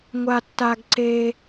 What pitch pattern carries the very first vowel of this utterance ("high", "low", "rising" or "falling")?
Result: high